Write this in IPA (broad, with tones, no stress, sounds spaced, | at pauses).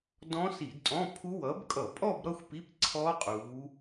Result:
d ɔ̃˦˥ s i˧˩˧ d tʼ ɔ̃˧˥˧ pʰ u˦˥ w ʌː˨˦ b kʼ ʌ˧˩˧ pʼ ɔ˥˧ b ɾ ʌ˥˧ xʷ p i˧˥˧ p ǀʰ ɔ˦˥ qʼ uː˨˦